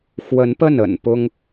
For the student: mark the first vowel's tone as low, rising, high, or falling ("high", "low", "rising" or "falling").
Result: rising